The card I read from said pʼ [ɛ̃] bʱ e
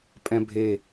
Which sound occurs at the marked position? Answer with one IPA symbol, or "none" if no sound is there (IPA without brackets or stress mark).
ɛ̃